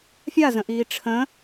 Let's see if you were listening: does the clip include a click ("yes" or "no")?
no